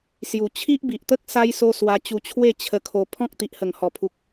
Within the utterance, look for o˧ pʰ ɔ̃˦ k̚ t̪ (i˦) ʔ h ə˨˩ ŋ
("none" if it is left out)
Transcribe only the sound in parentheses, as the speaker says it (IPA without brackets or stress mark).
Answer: i˨